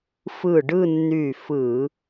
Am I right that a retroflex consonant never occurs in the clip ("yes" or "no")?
no